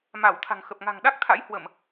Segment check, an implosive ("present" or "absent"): present